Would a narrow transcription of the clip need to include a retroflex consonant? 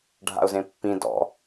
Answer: yes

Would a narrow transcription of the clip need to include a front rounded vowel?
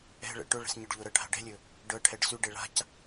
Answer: yes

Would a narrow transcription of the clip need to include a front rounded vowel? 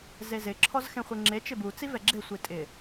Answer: no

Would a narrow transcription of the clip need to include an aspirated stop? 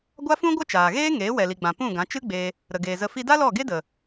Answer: no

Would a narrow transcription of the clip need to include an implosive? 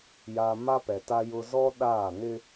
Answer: yes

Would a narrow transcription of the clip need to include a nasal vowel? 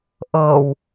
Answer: no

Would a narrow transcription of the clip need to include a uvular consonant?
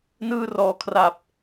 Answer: no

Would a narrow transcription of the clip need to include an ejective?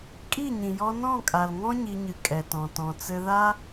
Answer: yes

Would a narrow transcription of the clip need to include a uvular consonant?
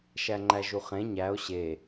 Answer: yes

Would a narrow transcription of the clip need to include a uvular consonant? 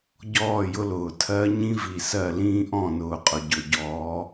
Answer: yes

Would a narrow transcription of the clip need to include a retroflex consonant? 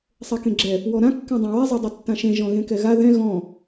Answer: no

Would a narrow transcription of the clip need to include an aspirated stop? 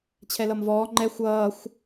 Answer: yes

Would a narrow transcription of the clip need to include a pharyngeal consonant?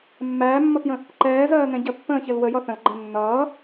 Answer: no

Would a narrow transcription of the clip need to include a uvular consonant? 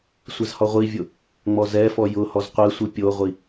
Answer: yes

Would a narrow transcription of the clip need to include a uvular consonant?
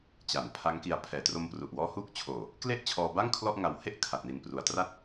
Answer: no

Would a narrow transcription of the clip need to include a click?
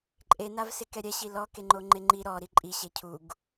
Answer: yes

